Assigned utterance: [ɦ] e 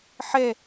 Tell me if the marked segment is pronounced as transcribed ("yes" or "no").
no